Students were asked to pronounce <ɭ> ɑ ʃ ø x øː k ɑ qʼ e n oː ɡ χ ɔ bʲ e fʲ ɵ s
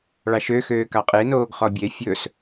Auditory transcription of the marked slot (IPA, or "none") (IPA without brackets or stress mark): ɭ